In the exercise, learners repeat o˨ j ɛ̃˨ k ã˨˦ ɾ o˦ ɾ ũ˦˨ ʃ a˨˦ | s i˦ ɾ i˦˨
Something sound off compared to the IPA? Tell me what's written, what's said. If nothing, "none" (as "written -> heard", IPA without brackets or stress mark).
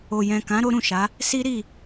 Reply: none